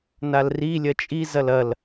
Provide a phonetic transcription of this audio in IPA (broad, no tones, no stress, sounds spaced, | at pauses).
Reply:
n a l r i lʲ ɐ t͡ʃʼ i z ɐ l ɐ l